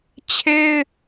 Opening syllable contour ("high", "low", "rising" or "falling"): high